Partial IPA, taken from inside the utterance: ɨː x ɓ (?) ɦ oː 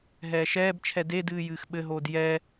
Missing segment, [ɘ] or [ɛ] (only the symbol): ɘ